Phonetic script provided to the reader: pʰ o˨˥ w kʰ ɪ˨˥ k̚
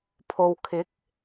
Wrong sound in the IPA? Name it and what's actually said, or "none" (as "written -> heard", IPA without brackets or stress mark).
o˨˥ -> o˨